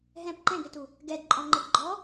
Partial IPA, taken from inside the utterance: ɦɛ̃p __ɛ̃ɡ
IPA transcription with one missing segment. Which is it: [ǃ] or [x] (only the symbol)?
ǃ